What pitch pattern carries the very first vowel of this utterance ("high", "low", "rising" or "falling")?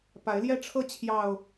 rising